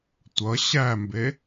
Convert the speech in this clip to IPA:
tʷ ʌ ɕ æ m b e

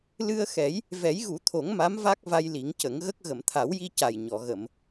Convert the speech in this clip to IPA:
l ɨ˧ ə̯ x ɛ˨˩˦ j | v ɛ˨˩˦ j ɣ u˨˩˦ t̪ʰ o˨˩˦ ŋ m a˧˥ m v a˦˥ k̚ v a˧ j l i˨˩˦ ŋ c ə˨˩˦ ŋ ɣ ə˦˥ k̚ ɣ ə˨˩˨ m t̪ʰ a˨˩˦ w j i˧ c a˨˩ j ɲ ɔ˨˩˨ ɣ ə˨˩˨ m

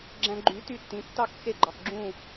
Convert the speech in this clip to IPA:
ɡ͡ǁ æ̃˧ ɡ͡ǃ y˩˥ t y˥˩ tː ĩ˩˥ tː ɑ˥˩ k x e˥˩ ɡ͡ǃ ɑ˩ x ɡ͡ǁ ũ˥˩

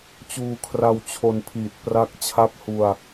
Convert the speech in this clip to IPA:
t͡ɕ uː˧ kʰ r a˧ w t͡ɕʰ o˧ n pʰ iː˨˩ t̚ p r a˦˥ k̚ t͡ɕʰ a˦˥ p̚ h u˧ a̯

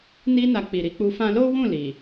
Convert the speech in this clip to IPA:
n i˦ n a˧ k͡p i˨ ɾ i˧ k͡p u˧ f ã˧ l o˦ w ũ˦˨ l i˨

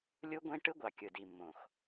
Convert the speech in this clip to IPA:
lʲ u˦ ɡʷ ẽ˦ ʈ ɯ˦ ɡʷ ɑ˨ kʲ ɯ˨ d i˨ mː õ˨ x

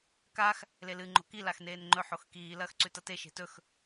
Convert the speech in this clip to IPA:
k a x | l e l ɨ ŋ͡ǃ o̤ k i l a x n eː n ŋ͡ǃ ɵ ħ o x k iː l ɐː x ǀ ʉ t ɐ t e ʃ e̤ t ɵ x

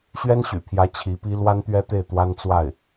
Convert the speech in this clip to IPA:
ɕ ɥ ɛ˥ n ɕ y̰˨˩ pʰ j ä˧˥ t͡ɕʰ i˧˥ p i˥ l w a˥ n t̪ ɥ ɛ˥ t̪ e˥˩ ɪ̯ t̪ w a˥ n t͡s w a˥˩ ɪ̯

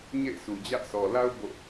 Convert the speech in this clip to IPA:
ɲ ḛ˦˨ ɪ̯ sʰ u˨ d͡ʑ ä˦ ʔ s ɔ˨ l a˦ ʊ̯ b o̰˦˨

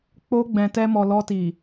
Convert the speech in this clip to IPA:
k͡p o˧ ɡ͡b ɛ̃˨ t ɛ˧ m ɔ˨ l ɔ˧ t i˨

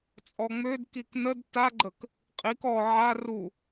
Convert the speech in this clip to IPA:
t͡sʼ ɔ ŋ͡m ø d k i k n ə d t a ɡ͡ǃ ə k | qʼ i k ɔ ʕ a r u

